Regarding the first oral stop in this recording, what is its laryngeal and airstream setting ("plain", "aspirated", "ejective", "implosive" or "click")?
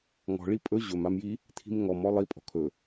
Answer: ejective